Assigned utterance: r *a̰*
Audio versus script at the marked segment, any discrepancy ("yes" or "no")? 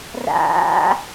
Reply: no